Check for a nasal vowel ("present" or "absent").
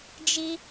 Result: absent